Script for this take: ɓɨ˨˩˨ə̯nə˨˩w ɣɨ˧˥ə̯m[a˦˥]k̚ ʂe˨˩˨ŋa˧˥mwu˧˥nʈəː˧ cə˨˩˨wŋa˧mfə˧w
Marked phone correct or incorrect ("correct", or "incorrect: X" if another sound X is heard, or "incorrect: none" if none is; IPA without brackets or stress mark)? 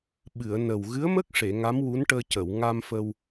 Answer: incorrect: ə˦˥